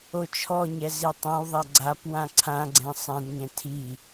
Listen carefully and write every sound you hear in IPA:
ot͡ʃʰɔɲɛ zitˤãwðˤa ɡ͡ǀap wãǀʰãɡ͡ǀɛ̃ sˤɛ̃dɲɛ̃ tʰi

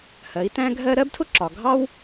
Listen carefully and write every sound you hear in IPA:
hɜ˩˧i̯tæ̃˥ɡʱɜ˥ ɾɜ˥btʰʊ˥ ǁɒ˩ ɡʱɑ˥w

